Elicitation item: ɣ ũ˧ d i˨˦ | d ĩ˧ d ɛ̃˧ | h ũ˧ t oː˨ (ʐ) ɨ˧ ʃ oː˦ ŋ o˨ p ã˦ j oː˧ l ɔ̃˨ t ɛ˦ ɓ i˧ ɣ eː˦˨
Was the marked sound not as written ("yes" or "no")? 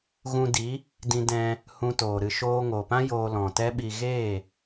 yes